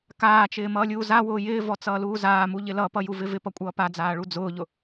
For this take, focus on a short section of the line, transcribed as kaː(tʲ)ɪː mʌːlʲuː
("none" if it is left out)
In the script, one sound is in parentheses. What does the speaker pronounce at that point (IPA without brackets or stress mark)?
t͡ʃ